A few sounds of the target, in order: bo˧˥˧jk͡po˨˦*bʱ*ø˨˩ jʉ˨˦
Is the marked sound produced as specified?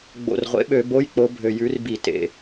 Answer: yes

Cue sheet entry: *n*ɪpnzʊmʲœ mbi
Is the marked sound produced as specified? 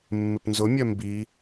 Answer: no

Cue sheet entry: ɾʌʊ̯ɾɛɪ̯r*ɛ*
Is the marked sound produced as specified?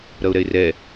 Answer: yes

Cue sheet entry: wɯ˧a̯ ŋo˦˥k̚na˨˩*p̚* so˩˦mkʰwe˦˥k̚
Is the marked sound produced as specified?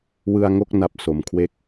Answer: yes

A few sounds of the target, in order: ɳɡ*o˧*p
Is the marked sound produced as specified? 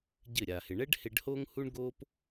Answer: no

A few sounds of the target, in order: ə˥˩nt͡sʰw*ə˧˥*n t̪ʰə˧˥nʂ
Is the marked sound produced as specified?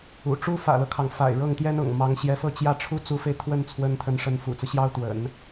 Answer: yes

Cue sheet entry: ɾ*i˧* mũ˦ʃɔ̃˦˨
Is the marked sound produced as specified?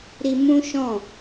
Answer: yes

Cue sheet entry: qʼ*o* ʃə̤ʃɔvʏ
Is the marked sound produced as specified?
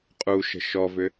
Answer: no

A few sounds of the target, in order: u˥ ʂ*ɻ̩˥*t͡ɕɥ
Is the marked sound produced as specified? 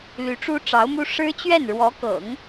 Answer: yes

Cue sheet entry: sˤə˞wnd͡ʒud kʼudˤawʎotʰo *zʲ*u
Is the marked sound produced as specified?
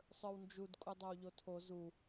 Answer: no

